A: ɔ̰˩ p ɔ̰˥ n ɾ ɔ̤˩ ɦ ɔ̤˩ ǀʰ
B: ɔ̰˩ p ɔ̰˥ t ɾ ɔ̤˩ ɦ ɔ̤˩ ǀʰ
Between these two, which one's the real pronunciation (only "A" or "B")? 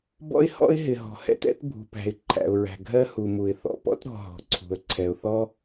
B